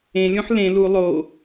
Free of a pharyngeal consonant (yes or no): no